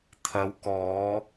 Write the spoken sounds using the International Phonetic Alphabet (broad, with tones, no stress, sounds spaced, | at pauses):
t̪ʰ ɐ˨˧ w k ɔː˨˧